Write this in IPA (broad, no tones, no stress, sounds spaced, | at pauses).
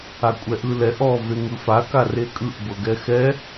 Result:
a kʷʼ ɛ ʔ ɯ l ɛ ʔ ɔ v e ŋ ɯ f a k a r e kʼ ɯ ʔ b ɤ ɡ ɛ x ɛ